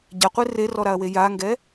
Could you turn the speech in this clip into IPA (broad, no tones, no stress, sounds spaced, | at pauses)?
ɟ a qʷ e r e r ɔ ɾ a ɐ̯ w e j a ŋ ɡ ɛ